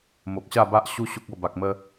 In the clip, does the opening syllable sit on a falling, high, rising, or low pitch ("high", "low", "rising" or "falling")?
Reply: low